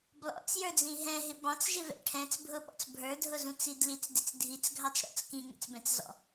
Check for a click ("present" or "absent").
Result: absent